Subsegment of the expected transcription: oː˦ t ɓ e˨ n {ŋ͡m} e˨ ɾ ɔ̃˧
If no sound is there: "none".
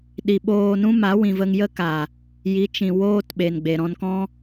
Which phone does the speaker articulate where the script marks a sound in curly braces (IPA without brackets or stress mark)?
ɡ͡b